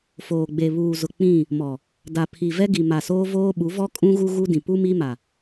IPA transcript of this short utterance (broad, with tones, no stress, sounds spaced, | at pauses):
f oː˨ ɡ͡b e˨ β uː˨ z ʊ˨ k͡p ĩ˦˨ | m ɔ˨ | d a˨ pʰ i˨ v ɛ˦ ɡ i˨ m a˨ s oː˦ v oː˦ ɓ u˨˦ v ɔ˦ kʼ ũ˦ ɣ u˦ ɣ u˦ d ĩ˨ p u˦ m i˦ m a˨